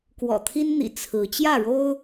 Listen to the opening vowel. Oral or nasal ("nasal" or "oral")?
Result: oral